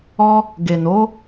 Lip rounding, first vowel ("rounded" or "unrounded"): rounded